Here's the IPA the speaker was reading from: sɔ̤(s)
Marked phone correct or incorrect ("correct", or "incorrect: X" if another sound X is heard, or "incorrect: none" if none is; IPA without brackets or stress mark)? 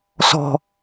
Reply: incorrect: none